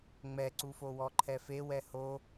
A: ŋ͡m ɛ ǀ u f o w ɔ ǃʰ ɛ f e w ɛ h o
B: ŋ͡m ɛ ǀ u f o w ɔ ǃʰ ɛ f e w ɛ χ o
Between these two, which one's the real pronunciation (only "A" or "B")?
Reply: A